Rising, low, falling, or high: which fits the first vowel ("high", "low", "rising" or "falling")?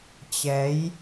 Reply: rising